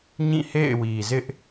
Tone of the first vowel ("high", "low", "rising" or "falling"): falling